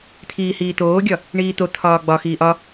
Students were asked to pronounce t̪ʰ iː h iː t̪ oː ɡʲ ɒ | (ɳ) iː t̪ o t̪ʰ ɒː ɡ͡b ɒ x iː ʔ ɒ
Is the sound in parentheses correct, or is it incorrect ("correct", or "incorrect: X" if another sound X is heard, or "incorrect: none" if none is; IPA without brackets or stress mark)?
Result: correct